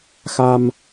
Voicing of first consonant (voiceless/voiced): voiceless